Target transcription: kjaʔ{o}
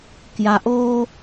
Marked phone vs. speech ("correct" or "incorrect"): incorrect